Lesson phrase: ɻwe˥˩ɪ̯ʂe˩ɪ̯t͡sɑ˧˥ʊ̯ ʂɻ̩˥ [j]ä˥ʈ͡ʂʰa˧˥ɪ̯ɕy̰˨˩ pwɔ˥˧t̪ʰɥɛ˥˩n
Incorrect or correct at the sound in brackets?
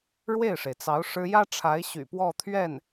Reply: correct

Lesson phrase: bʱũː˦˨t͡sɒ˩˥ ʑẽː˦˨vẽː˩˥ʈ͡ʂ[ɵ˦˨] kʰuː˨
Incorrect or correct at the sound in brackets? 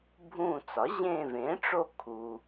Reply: incorrect: o˦˨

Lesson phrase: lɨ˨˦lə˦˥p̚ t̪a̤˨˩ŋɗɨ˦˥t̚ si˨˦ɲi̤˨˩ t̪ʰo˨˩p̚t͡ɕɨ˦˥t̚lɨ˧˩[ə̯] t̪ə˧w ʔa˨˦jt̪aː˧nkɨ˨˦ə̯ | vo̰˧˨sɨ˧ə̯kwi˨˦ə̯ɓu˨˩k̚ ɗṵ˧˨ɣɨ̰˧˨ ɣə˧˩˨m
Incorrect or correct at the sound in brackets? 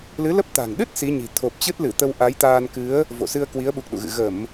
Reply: incorrect: none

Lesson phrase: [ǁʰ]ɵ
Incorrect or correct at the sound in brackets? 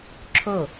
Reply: correct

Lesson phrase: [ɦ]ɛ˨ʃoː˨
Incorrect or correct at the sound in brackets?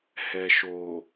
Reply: incorrect: h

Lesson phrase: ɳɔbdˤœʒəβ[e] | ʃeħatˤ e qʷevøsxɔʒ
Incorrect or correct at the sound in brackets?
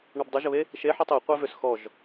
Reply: correct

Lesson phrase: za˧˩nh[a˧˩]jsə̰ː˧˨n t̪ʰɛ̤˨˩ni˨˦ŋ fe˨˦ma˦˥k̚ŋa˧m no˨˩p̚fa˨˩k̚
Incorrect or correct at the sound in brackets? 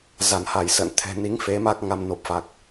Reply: correct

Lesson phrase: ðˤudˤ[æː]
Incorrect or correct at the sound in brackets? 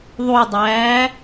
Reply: correct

